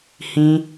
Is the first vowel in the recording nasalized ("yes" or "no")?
yes